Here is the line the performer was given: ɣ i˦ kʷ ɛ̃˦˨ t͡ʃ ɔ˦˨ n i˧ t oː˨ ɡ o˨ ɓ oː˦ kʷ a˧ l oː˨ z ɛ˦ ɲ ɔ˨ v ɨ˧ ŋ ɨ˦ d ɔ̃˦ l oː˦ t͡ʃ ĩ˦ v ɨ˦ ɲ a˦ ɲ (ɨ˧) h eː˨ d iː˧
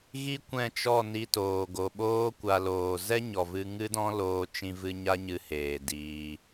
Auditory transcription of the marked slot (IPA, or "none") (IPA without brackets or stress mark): ɨ˧